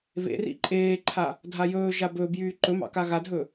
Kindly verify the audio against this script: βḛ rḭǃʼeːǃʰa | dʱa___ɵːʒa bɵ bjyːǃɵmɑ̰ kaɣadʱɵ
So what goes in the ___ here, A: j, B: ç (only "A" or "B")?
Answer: A